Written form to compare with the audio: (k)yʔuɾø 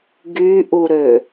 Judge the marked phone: incorrect: ɡ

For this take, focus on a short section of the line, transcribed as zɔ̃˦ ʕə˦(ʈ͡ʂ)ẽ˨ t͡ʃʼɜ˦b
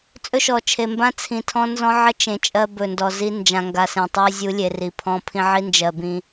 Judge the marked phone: incorrect: t͡ʃ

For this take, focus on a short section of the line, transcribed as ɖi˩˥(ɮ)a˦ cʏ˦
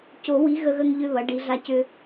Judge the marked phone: correct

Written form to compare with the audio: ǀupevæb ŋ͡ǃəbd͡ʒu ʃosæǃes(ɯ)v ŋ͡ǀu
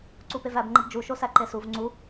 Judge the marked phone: incorrect: u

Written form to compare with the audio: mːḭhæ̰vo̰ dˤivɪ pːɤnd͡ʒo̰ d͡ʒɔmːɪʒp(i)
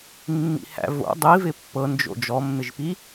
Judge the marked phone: correct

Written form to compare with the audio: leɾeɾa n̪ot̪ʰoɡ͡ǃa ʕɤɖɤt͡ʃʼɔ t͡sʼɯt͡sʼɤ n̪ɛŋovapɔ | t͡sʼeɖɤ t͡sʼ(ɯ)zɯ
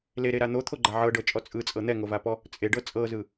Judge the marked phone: incorrect: ɤ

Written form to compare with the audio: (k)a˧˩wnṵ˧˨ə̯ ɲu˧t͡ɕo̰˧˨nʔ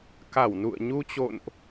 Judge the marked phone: correct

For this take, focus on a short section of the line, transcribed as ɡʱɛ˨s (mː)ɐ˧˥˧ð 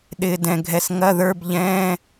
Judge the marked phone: incorrect: ŋ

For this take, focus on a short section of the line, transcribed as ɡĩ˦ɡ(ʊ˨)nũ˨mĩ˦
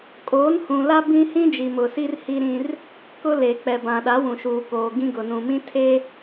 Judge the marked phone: correct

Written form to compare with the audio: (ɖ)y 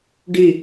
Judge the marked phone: correct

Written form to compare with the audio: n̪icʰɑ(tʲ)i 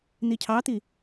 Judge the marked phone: incorrect: t̪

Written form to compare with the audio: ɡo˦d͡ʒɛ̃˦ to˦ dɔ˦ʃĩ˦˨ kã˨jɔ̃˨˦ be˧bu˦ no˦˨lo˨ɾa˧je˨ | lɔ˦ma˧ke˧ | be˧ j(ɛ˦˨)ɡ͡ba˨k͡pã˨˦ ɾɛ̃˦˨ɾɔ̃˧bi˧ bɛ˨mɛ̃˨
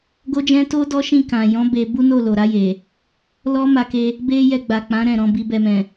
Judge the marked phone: incorrect: ɛ˧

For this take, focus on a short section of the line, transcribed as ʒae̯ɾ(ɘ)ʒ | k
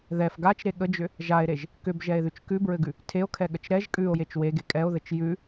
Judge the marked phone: incorrect: e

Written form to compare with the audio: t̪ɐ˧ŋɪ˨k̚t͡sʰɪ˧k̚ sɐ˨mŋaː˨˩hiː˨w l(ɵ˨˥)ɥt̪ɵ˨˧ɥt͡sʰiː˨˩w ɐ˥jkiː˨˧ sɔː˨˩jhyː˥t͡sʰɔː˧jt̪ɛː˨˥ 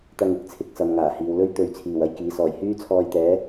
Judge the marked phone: incorrect: ɵ˥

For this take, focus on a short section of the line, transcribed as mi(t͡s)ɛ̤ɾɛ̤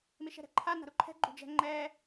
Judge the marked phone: incorrect: ʃ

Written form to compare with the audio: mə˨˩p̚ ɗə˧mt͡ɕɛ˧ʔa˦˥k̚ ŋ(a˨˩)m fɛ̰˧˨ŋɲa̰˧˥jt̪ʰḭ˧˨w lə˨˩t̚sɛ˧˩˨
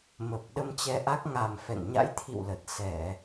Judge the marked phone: correct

